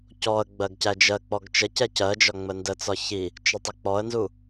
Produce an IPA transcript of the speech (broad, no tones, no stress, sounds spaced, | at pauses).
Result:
c ɔ ə̯ ɡ͡b ɜ ɡ c æ d͡ʒ ɜ k͡p ɔ ɡ t͡ʃ ə c ɛ c ɜ d͡ʒ ɒ ŋ͡m ə n d ə t͡s ɒ ç i | t͡ʃ ə tˤ ɪ k͡p ɔ ə̯ n z u